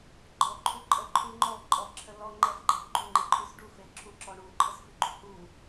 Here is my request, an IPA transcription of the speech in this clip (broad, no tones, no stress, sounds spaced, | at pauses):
ɡ͡ǃ ɔ ǃʰ u ǃʼ ə ǃʰ u ŋ͡ǃ ɔ ǃʼ ɔ ǁʰ ə l ɔ ŋ͡ǃ ɛ f ɡ͡ǃ ɛ ɡ͡ǃ u ŋ͡ǃ e ǃʼ ʉ s ɖ u f e ǁʰ u ǁ ɔ ɳ u ǃʰ ə s f ʉ ɡ͡ǃ ʉ h u